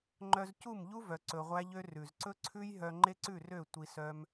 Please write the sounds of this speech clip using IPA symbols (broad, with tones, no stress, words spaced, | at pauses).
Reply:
ŋ͡ǃœ˧zcu˦˨mʎu˦ vœ˧ǀɵ˧ʁʷæ˦ʎø˦ rʉ˨zǀɵ˦ ǀʰʉ˦j ɦœ˧ŋ͡ǃe˦ǀʉ˦˨rø˦˨ tʷi˧sœ˦m